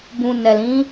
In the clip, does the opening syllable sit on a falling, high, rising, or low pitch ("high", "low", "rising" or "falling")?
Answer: low